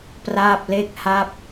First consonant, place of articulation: labial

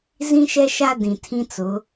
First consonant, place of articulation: alveolar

